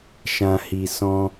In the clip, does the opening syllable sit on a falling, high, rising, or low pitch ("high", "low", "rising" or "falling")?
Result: low